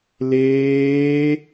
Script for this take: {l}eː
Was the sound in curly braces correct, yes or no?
yes